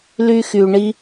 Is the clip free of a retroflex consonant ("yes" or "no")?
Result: no